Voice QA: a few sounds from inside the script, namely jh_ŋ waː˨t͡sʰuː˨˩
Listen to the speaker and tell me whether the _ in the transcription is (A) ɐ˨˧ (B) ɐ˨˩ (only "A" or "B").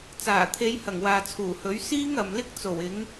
B